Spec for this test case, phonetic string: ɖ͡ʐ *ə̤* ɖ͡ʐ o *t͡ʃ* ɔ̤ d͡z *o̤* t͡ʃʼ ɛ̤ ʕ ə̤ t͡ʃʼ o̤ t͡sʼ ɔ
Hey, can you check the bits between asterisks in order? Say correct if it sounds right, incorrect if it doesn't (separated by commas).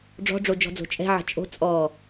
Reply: incorrect, incorrect, correct